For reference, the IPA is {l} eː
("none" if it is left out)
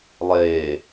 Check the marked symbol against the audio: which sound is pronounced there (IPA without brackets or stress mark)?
lˠ